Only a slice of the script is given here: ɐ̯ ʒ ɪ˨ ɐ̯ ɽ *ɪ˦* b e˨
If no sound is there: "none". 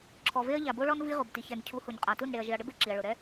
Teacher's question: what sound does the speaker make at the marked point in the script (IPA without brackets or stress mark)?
ɪ˦